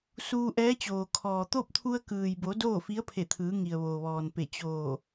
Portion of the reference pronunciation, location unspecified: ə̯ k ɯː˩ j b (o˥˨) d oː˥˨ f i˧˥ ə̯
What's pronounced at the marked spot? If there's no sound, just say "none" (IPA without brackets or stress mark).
o˩˧